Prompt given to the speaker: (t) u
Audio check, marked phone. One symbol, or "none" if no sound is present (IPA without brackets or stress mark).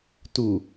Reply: t